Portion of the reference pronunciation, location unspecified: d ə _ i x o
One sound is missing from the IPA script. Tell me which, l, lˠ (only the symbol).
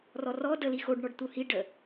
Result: l